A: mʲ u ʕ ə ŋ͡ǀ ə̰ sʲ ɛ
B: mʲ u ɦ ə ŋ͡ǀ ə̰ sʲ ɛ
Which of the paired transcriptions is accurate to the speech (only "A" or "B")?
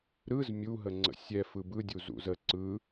B